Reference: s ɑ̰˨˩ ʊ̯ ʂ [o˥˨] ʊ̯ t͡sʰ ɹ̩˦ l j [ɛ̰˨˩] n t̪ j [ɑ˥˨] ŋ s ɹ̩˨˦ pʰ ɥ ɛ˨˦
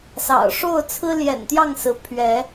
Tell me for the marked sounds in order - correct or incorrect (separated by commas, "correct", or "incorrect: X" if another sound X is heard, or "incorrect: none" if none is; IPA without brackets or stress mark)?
correct, correct, correct